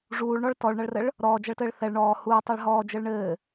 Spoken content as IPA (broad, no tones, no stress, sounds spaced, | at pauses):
ʐ uː ɭ ɳ ɔ ɭ t ɔ ɭ ɳ ɐ ɭ r ɘ ɭ | ɾ ɔː d͡ʒ ɐ ɭ t ɘː ɭ θ ɛ ɭ ɳ ɔː h uː tˤ a ɭ ɦ ɔː d͡ʒ ɘ ɭ ɳ ɘː